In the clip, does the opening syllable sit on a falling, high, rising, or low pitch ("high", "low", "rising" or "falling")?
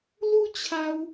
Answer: high